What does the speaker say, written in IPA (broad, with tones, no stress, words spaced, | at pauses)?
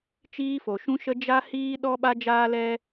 t͡ʃiː˧fo˨ʃũ˧ʃə˧ d͡ʒa˦hiː˦ ɗɔ˦ɓa˦ d͡ʒaː˦lɛ˦